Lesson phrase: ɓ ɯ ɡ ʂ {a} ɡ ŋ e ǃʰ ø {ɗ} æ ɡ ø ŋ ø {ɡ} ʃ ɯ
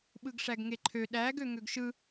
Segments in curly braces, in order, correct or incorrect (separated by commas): incorrect, correct, correct